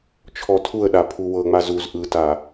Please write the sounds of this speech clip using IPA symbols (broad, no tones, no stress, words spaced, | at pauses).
t͡ʃʰɔtʰuə̯ɗa pʰuwɤŋ͡ma zuz ʔɯta